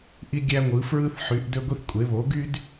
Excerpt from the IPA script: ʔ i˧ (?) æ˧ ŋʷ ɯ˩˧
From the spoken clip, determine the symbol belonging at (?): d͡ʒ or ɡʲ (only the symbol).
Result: ɡʲ